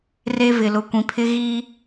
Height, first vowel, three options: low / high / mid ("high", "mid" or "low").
mid